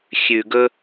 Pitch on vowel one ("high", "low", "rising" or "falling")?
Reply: low